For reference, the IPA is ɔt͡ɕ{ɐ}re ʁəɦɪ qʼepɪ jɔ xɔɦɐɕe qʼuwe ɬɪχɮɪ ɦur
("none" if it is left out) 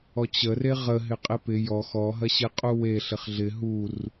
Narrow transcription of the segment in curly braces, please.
ə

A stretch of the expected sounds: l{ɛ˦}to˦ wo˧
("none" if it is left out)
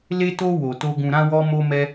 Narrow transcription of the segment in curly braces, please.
e˦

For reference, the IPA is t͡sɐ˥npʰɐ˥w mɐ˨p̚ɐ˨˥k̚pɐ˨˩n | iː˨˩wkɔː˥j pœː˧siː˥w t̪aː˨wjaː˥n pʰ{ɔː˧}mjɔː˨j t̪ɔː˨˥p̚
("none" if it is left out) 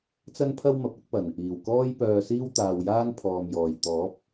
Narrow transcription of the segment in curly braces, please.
ɔː˧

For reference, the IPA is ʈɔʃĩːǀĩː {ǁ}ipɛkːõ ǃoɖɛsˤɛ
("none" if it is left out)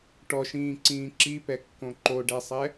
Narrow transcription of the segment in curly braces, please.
ǁ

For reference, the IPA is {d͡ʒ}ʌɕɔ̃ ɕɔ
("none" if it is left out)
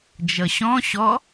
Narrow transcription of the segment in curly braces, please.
d͡ʒ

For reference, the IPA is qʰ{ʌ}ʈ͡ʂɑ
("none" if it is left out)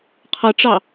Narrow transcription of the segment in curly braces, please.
ʌ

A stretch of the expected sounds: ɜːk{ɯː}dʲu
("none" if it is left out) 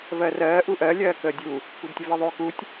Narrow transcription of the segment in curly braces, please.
əː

